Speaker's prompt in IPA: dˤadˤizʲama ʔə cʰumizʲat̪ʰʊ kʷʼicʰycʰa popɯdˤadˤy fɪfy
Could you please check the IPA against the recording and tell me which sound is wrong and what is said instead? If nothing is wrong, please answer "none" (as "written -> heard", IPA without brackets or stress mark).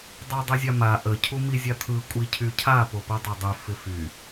ʊ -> ɯ